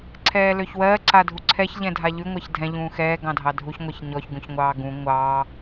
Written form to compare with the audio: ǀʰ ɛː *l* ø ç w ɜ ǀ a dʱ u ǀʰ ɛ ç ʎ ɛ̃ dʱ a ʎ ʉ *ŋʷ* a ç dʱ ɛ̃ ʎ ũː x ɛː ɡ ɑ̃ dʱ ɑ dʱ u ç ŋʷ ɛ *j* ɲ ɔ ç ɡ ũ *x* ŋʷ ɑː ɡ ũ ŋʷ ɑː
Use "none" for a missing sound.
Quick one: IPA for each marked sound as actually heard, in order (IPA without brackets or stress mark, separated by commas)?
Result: l, ŋʷ, ç, ç